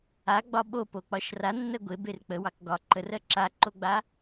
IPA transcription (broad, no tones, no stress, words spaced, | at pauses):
aɡ͡bɒ ɓopok͡pɒʃ ranːɜ ɡʷeber k͡pəwɑk ɡɒ ǃərɜ ǁaǃoɡ͡ba